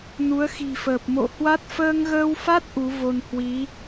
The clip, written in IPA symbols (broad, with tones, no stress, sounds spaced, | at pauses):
n u˨˦ ə̯ x i̤˨˩ f əː˨˩ p̚ m o̰˧˨ h w a˦˥ t̚ f əː˧ ŋ ɣ əː˧ w f a˦˥ t̚ ʔ u˨˦ v o˧ n h w i˨˦